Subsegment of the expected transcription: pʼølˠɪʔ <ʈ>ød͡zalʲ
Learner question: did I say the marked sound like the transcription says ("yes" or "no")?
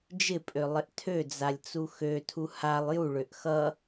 no